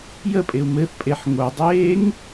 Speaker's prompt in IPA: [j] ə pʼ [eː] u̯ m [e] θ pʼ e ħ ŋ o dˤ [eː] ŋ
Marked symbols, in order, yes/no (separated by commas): yes, no, no, yes